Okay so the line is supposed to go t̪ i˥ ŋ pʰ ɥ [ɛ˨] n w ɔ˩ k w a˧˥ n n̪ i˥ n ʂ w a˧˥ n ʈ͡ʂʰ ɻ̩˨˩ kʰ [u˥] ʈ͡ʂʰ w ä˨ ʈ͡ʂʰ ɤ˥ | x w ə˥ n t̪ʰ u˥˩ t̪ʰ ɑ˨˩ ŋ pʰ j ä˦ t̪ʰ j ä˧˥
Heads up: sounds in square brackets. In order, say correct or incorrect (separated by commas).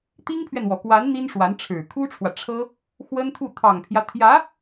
correct, correct